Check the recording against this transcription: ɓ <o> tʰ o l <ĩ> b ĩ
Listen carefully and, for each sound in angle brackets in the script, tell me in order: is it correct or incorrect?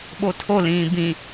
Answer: correct, incorrect: ĩː

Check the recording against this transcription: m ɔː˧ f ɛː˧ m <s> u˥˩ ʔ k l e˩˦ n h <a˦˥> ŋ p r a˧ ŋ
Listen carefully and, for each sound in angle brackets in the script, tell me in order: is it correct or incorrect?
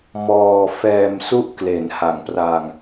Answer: correct, incorrect: a˨˩

